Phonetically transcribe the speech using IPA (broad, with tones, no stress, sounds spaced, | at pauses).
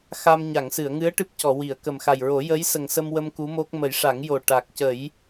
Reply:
x a˧ m ɲ a˨˩˨ ŋ s ɨ˨˩˨ ə̯ ŋ ɨ˧˥ ə̯ ʈ ɨ˦˥ p̚ c ɔ˨˩˨ w i˨˩˨ ə̯ k ə˨˩ m x a˨˩ j ɹ o˨˩˦ j ə˧˥ j s ə˨˩ ŋ s ə˧ m w ə˧ m k u˧˥ m o˦˥ k̚ m ə˨˩˦ j ʂ a˨˩˦ ŋ j o˨˩ ʈ a˨˩ k̚ c ə˨˩˦ j